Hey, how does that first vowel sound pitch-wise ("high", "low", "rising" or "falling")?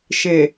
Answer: low